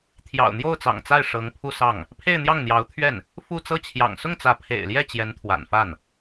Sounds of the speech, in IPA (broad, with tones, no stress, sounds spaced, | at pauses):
t̪ʰ j ɑ̰˨˩ ʊ̯ n̪ j o˥˩ ʊ̯ t͡s ɑ̰˨˩ ŋ t͡s a˥˩ ɪ̯ ʂ ɤ˧˥ ŋ pʰ u˥˧ s ɑ˥˩ ŋ | pʰ e˥˧ ɪ̯ n̪ j ɑ˥˩ ŋ n̪ j ɑ˧˥ ʊ̯ t̪ʰ ɥ ɛ˥˩ n | f u˥˧ t͡s ɤ˥˩ t͡ɕʰ j ɑ̰˨˩ ŋ s ʊ˥˩ ŋ t͡s ä˧˥ pʰ ḛ˨˩ ɪ̯ l j ɛ˥˩ t͡ɕ j ɛ˧˥ n t̪ʰ w a̰˨˩ n f a˥˩ n